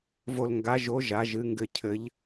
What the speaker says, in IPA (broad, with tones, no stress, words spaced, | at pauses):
vo˥l ŋɡa˧˥ʒo˧˥ ʒa˧˥ʒɨ˧˥ŋɡɘ˥ cʰɘ˧˥ʎ